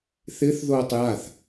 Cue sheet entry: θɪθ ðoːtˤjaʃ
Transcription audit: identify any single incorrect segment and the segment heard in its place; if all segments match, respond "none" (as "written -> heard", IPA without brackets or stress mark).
ʃ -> θ